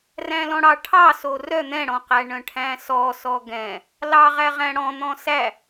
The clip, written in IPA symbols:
r æ̃ l ɔ̃ ɽ ɑ ʈʰ ɑ s o r œ n̪ ɛ̃ ɽ ɔ̃ q æ ɳ œ̃ ʈʰ æ̃ s ɔ s ɔ ɡ ɛ̃ | l ɑ ʁ æ ʁ æ̃ ɽ ɔ̃ n̪ ɔ̃ s æ

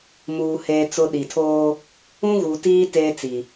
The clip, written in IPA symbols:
m uː˨ h eː˨ t͡s ʊ˦ ɗ i˨ tʰ oː˦ | ũ˦ ɣ u˨ t iː˦ t eː˦ t͡s i˨

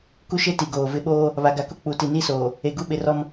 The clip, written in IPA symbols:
k u˦ ʃ e˦ t i˨ ɡ oː˨ v ɪ˦ ɓ oː˦ | β a˨ ɡ a˨ k ʊ˦ k͡p u˨ t i˨ n i˦ s oː˨ | e˨ ɡ u˦ ɓ ɪ˨ r ɔ˦ m

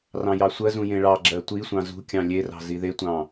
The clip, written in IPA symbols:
r ɑ̃ j ɑ sʷ ɜ z ũ j ẽ ɭ ɑ ɡ͡ǁ ɜ tʷ i sʷ ɑ̃ z ṳ kʲ ɑ̃ lʲ e r ɑ̤ z i ð e tʷ ɑ̃

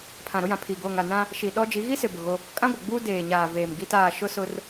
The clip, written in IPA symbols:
pʰ ã˨ ɾ ʊ˦ j ã˨ pʰ i˨ ɡ oː˨ ŋ a˨ n ã˦ | ʃ i˨ ɗ ɔ˦ d͡ʒ i˨˦ ɣ i˦ s ɪ˨ b ʊ˨ ɣ o˦ | kʼ ã˦ ɡʷ ɪ˨ ɡ͡b uː˦ d eː˨ ɲ aː˨ v eː˨ m ɡ i˦ t aː˦˨ ʃ ʊ˦ s ʊ˦ r

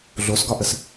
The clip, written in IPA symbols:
ɮ o s ɡ ɒ ʔ ə s

